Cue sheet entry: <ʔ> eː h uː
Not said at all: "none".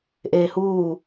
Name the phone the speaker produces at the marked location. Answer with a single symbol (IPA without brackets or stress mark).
ʔ